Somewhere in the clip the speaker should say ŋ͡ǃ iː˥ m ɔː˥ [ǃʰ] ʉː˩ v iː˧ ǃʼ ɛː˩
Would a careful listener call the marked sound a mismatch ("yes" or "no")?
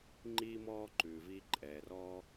yes